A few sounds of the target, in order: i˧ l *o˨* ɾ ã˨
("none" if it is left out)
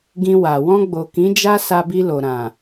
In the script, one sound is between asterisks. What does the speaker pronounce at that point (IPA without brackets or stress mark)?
o˨